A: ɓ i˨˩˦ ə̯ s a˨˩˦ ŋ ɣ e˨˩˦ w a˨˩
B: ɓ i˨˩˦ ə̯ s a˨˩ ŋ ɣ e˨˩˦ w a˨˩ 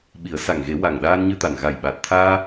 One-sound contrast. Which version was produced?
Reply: B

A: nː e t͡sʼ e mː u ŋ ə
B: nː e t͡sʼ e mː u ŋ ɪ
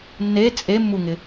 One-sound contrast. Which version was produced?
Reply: B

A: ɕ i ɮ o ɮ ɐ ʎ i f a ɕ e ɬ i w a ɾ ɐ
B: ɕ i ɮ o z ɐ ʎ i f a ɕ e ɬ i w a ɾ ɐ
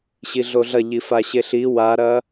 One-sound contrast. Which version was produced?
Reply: A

